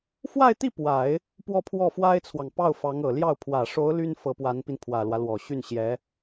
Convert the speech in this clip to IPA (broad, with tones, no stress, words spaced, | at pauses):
fwa˥˧ɪ̯t̪i˥˩ pwa˨˩˦ɪ̯ | pwɔ˥˧pʰwɔ˥˩fwa˥ɪ̯t͡sʰwɑ˨ŋ pɑ˥˩ʊ̯fɑ˧˥ŋɤ˨˩ljɑ˥˩ʊ̯ pʰwä˨˩ʂo˧˥ʊ̯ ly˥n fɤ˧˥pwa˧˥npi˧n pʰwä˨˩lwä˦lwɔ˨˩ɕy˥˩n ɕjɛ˧˥